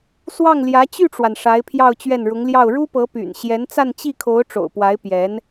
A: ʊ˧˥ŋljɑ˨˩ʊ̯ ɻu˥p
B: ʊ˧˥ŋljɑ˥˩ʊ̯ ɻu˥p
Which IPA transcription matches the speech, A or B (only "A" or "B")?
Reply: B